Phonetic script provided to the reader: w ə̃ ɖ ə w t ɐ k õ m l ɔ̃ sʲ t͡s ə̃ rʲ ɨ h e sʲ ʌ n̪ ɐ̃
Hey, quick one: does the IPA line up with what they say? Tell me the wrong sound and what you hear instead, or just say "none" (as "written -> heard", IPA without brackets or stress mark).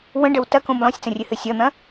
e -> ɨ